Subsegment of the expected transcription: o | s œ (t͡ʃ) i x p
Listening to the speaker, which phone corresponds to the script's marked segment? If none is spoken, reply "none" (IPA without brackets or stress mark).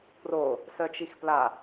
t͡ʃ